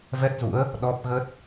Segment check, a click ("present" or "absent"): absent